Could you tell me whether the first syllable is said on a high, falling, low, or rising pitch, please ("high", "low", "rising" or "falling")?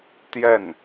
falling